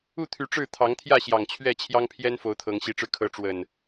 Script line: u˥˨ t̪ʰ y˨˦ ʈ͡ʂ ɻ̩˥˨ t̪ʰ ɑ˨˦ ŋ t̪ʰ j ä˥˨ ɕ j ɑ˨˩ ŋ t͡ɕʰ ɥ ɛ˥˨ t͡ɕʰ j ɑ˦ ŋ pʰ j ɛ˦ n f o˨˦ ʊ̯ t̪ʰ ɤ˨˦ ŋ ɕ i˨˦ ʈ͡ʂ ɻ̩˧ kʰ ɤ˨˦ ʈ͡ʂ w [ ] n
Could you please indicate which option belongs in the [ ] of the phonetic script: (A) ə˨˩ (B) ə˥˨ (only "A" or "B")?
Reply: A